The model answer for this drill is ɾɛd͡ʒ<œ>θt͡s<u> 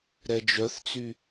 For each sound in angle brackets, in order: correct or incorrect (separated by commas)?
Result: correct, incorrect